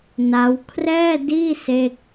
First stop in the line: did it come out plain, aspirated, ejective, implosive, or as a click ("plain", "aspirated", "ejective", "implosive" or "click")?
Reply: aspirated